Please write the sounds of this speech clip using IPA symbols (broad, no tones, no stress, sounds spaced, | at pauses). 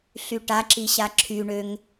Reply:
ɬ y ʈ a ǁ i ɕ a ǁʰ y ɳ ø ŋ